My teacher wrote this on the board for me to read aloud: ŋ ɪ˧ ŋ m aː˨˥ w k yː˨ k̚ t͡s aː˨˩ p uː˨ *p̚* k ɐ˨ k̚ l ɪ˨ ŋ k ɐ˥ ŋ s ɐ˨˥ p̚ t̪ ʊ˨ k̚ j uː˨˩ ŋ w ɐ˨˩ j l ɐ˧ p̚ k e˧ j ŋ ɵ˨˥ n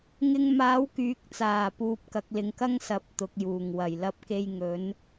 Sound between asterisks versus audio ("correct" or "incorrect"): correct